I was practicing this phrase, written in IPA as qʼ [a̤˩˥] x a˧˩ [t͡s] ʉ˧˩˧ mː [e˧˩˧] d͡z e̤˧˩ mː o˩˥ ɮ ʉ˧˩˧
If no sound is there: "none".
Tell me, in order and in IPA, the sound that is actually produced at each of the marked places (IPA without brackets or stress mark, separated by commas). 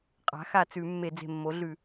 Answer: a̤˩˥, t͡s, e˧˩˧